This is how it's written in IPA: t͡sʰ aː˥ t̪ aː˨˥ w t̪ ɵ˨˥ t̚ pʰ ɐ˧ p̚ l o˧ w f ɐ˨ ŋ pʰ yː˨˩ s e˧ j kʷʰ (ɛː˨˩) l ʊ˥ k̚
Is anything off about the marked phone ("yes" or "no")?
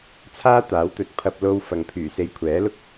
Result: yes